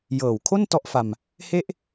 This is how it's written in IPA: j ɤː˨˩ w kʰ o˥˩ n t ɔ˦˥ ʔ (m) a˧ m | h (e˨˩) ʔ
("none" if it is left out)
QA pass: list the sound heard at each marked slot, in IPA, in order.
f, e˥˩

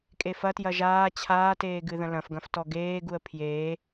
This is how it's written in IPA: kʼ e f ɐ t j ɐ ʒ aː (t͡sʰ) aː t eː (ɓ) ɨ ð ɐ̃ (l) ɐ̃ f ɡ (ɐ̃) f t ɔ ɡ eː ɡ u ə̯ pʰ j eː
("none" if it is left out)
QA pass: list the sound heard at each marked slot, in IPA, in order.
t͡ɕʰ, ɡ, l, ɐ̃

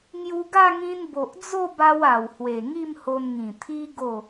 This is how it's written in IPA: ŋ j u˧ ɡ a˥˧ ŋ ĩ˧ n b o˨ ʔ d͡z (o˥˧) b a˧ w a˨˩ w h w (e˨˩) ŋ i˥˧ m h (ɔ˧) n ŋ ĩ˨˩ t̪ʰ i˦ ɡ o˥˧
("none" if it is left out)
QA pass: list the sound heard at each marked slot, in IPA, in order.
o˥˧, e˨˩, o˧

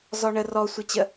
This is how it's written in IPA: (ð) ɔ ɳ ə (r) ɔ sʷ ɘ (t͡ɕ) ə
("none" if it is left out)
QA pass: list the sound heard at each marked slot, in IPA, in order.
z, r, t͡ɕ

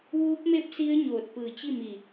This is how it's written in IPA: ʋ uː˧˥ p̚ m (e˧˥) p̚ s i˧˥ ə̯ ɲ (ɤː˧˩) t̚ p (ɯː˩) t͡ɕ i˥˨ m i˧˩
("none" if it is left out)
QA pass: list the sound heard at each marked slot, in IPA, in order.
e˥˨, oː˧˩, ɯː˧˩

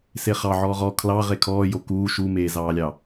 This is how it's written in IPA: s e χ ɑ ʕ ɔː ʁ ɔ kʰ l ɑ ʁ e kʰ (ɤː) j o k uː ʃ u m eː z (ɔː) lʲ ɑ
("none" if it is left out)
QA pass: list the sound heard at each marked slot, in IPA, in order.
ɔː, ɑː

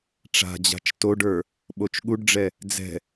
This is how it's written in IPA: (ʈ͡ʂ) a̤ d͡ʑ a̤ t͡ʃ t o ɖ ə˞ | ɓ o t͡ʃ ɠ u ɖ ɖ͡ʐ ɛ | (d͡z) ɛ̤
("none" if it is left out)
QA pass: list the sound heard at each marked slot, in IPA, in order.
ʈ͡ʂ, d͡z

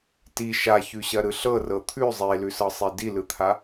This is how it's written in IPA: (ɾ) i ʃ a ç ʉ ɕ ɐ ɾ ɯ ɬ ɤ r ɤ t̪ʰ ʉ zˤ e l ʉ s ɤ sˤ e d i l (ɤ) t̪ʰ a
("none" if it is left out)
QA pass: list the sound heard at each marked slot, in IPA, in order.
t, ɯ

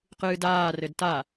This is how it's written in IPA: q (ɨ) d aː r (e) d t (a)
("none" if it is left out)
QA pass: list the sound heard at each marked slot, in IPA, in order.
ɨː, ɘ, a

